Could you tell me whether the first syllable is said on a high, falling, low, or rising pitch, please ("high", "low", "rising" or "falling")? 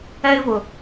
high